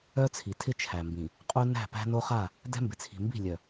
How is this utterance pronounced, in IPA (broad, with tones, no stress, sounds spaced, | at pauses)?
œ˦ t͡sʰ i˨ tʰ ɪ˦ t͡ʃʰ æ˨ m b ĩ˨ | qʼ u˦ n æ̤˦˨ p æ̤˦ n o˦ χ a˦˨ | d ɛ̤˦ m b ɪ˨ t͡sʰ i̤˨ m b i̤˦˨ lʲ œ˨